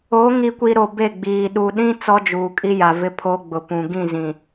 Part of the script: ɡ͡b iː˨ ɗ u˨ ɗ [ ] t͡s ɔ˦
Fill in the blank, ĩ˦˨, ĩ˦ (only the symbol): ĩ˦